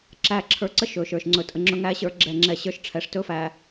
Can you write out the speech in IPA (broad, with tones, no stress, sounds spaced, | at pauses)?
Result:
ǁ æ˦ ǁʰ ə˞˨ ǀ ə˦ ʃ ɵ˨ ʃ ə˞˨ ʃ ŋ͡ǀ ɵ˨ tʼ ə˨ ŋ͡ǁ ɵ˦ ŋ æ˦ ɕ ə˞˦ ɡ͡ǁ ɛ˦˨ ŋ͡ǁ ɛ˦˨ ɕ ə˞˦ ʃ ʈ͡ʂʰ ɛ˨ ʂ t ɵ˦ f æ˨